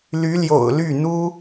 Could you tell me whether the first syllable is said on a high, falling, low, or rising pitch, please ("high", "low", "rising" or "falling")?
rising